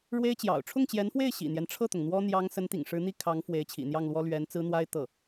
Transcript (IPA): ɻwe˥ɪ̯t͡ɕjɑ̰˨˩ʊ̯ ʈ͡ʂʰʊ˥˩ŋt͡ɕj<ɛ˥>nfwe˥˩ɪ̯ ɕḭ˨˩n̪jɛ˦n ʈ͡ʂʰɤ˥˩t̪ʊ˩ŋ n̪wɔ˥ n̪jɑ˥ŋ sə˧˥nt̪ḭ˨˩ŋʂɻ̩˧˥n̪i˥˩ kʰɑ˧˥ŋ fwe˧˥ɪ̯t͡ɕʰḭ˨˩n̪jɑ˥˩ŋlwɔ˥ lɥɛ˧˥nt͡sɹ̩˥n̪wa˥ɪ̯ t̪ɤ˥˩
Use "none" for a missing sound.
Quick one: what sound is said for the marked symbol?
ɛ˧˥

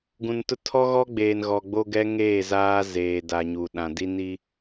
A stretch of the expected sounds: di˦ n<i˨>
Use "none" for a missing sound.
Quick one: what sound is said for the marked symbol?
i˦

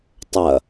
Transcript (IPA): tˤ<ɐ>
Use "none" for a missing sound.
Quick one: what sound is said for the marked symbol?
ɐ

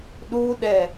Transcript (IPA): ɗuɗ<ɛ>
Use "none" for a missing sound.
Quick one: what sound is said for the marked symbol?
ɛ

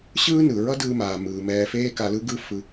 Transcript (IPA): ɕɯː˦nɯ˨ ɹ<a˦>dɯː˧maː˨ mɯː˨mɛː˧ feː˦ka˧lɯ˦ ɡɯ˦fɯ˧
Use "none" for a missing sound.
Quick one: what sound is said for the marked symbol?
ʌ˦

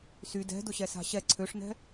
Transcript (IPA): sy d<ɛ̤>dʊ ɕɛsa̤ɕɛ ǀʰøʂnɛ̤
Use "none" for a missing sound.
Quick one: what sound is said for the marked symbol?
ɛ̤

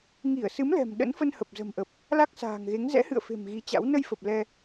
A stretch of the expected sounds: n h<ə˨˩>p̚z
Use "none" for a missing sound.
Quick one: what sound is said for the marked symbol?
ə˨˩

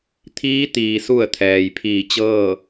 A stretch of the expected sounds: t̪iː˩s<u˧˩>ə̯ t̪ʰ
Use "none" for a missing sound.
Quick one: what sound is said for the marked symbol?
u˧˩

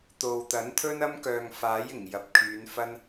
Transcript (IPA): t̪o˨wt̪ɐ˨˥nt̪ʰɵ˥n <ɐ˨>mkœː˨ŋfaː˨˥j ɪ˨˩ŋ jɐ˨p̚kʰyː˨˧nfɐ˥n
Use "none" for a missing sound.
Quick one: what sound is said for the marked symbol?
ɐ˥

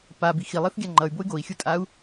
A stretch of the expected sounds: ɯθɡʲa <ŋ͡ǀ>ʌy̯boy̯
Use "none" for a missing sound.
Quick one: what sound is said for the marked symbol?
ŋ͡ǃ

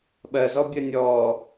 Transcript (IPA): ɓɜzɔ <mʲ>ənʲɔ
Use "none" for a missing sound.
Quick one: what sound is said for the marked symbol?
bʲ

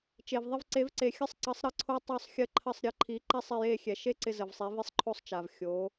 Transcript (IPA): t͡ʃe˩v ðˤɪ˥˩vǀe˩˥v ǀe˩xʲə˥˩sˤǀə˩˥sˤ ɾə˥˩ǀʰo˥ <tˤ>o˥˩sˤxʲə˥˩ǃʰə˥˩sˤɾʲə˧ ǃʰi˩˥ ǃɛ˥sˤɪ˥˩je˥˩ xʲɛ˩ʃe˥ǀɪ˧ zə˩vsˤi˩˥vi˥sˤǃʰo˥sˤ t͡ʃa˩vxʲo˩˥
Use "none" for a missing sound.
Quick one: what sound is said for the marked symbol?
tˤ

